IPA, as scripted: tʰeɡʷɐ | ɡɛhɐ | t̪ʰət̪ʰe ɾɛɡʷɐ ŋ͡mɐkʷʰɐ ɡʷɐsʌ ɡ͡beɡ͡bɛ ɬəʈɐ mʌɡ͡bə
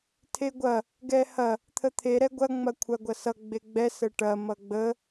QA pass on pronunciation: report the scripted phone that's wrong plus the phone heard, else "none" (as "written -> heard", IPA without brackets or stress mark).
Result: ɬ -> s